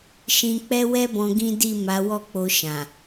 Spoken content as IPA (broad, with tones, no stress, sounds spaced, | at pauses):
ʃ ĩ˧ k͡p ɛ˦ w ɛ˦ b ɔ̃˧ ɡ ĩ˦ d i˦˨ m a˨˦ w ɔ˦ k͡p o˧ ʃ ã˨